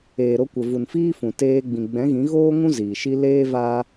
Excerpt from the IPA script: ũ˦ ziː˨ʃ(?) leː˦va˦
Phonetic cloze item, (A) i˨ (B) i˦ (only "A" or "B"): B